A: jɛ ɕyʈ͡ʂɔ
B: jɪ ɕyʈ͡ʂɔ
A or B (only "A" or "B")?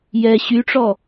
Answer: A